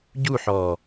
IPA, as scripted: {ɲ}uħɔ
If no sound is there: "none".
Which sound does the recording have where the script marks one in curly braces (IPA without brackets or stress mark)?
ɟ